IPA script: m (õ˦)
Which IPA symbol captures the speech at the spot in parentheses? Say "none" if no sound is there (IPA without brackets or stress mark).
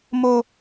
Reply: o˦